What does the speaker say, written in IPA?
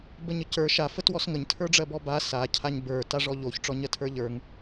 b ə ɲ ə c ə˞ ʃ a f ə t w ɔ s ŋ ə ɲ tʰ ə˞ ɖ͡ʐ ɜ b ɔ b a s a cʰ a ɲ b ə˞ t a ʐ ɔ ʎ o ç ʈ͡ʂ ɔ ɲ ɜ tʰ ə˞ ʎ ə˞ ŋ

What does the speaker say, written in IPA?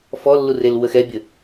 f ɔ lː u r e l w ə x ɛ bʲ ə

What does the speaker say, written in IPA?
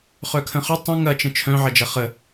χ œ kʰ ə̃ χ ʏ tˤ ə̃ ŋ ɐ t͡ʃ ə̃ t͡ʃʰ œ̃ ʕ ɐ d͡ʒ ɐ χ ə

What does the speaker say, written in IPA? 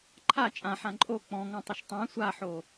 ǃʰ a t͡ʃʼ ã ħ ã ǃʼ o k͡p ɔ̃ ŋ ɔ̃ tˤ ʏ ʃ tˤ ã sʷ a ħ o

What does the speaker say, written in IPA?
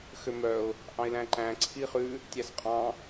x ø m œ ʊ̯ | ʔ ɑ̃ ɪ̯ l æ̃ ǃ æ̃ ǀʰ i χ ʉ | tʲ æ s qʼ ɑ̃

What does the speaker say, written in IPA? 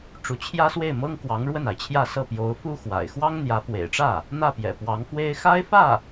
ʈ͡ʂ u˧˥ t͡ɕʰ j ä˥ s w e˥˩ ɪ̯ m ɤ˥ ŋ k w ɑ˧˥ ŋ ɻ w ə˥˩ n a˩ ɪ̯ t͡ɕʰ j ä˥˧ s ɤ˥˩ p j o˧˥ ʊ̯ f u˥ x w a̰˨˩ ɪ̯ x w ɑ˥ ŋ n̪ j ä˧˥ f w ḛ˨˩ ɪ̯ ʈ͡ʂ ä˥˩ | n̪ ä˥˩ p j ɛ̰˨˩ p w ɑ˧˥ ŋ f w e˥ ɪ̯ x a˥ ɪ̯ f ä˥˩

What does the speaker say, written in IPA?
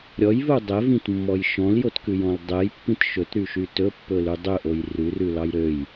ɾʲ ɔ j v u dˤ ɛ v ĩ t mː ɔ j ʃ ɔ̃ l j o t k ʉ j ɔ̃ l dˤ ɛ j pː ĩ t ʃ ɵ t ɾ y ʃ y t ɵ pː ɵ l ʉ dˤ ɵ ʔ o j r ʉ r ʉ l ɑ j ɾ ø j

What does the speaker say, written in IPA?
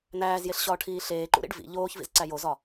n æː z j e ɬ ɕ ɒː ʈʰ iː ɬ eː ǃ ṵ ɾ ḭ ɖ v ḭ ʎ oː ç v ḭ z ǀ æ j o z ɒ

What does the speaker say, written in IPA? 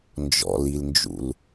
n d͡ʒ ɔ̰ l i l n d͡ʒ ṵ l

